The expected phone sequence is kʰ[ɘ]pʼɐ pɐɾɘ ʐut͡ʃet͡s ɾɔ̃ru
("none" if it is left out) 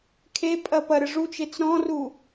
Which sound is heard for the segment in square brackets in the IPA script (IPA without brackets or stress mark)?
e